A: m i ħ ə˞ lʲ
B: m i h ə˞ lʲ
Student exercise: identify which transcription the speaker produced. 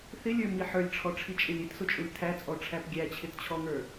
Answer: A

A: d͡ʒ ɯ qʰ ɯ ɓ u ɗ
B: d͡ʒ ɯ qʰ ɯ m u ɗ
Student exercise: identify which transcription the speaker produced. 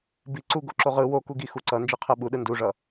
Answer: A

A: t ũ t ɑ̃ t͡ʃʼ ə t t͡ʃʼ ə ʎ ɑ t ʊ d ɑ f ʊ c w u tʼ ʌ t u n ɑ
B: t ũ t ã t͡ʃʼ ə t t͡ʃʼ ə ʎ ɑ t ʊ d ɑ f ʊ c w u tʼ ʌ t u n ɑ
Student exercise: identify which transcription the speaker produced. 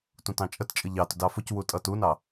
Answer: A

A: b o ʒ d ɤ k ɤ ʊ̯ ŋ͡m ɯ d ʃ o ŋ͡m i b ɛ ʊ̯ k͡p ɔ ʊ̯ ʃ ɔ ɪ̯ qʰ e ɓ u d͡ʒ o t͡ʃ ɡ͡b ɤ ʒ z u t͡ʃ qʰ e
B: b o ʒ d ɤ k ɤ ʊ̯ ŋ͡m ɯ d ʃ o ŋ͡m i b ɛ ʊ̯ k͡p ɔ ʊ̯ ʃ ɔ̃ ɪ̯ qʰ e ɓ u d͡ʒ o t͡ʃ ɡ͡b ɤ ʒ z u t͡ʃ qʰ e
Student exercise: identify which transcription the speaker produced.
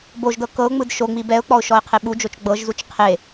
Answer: A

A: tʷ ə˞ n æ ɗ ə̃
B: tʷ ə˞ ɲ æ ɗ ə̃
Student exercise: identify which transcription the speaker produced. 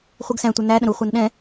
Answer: A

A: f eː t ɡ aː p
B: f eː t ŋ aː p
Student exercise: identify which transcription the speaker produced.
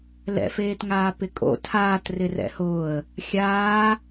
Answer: B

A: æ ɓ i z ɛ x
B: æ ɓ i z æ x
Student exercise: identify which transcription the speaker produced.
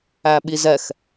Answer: A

